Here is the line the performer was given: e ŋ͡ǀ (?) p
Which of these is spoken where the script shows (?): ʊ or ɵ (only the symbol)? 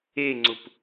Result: ʊ